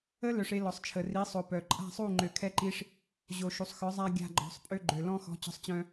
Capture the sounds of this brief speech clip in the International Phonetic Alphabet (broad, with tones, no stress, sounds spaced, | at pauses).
ə˦ l œ˧ ʂ e˧ l ɔ˨ sˤ t͡ʃʰ ə˨ r i˨˦ sˤ o˨ p œ˨ ǃʼ a̤˦˨ sˤ u˦˨ ŋ͡ǃ ø˨ kʰ ɛ˧ ǃ i˧ ʂ | ʑ o˨ ʃ u˨ sˤ x œ˨˦ zˤ a˧ ɡʲ a̤˧ ɡ͡ǃ ɔ̤˨˦ sˤ pʼ ø˧ ɡ͡ǃ ø˨ l ɔ̃˧ x ɔ̤˨˦ t͡ɕ ɔ̤˧ sˤ t͡ɕ œ̃˧